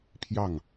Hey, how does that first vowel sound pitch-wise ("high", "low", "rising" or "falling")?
falling